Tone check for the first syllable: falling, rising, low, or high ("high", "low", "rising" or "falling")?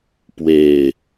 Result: low